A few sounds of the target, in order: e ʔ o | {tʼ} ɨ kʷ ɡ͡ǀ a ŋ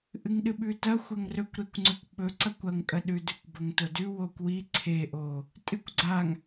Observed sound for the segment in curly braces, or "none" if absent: tʼ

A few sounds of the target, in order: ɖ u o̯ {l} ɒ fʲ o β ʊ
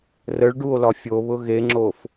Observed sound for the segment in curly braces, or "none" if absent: l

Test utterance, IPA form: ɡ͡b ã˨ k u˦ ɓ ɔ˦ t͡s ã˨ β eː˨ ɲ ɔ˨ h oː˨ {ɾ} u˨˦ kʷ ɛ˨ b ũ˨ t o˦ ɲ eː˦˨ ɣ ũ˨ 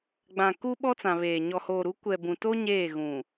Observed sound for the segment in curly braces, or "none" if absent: ɾ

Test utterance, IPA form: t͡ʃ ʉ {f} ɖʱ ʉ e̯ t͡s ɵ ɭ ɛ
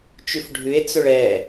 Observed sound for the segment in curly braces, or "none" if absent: f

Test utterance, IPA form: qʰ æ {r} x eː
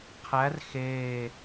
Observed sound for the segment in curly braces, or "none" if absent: r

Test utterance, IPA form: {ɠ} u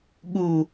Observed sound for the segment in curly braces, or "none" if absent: ɠ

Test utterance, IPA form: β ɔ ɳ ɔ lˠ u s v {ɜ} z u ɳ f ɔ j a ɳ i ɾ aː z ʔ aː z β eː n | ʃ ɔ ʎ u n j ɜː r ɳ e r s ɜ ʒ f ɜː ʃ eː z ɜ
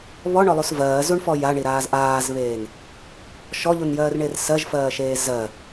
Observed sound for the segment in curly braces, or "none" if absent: ɜː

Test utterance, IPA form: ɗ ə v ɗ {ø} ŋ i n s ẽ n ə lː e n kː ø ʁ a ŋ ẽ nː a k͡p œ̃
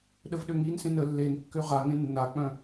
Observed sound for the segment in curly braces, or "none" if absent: ø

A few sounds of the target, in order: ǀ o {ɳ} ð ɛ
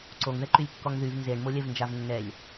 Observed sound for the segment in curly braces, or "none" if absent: ŋ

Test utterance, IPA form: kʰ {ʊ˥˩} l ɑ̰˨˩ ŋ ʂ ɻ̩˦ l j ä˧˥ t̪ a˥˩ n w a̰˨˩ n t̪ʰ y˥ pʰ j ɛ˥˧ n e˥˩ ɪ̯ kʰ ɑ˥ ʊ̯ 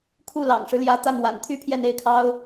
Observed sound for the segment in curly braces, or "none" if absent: u˥˩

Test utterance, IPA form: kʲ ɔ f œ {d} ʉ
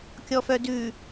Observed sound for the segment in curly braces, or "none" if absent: d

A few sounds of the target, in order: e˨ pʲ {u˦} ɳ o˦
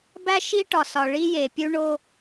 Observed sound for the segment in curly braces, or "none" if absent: u˦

